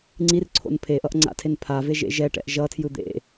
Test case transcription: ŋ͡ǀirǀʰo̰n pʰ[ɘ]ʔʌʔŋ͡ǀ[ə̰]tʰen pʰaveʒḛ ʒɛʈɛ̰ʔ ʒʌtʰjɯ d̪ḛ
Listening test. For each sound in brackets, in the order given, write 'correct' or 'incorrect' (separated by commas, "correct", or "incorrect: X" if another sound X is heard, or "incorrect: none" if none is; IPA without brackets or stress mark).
incorrect: e, incorrect: a̰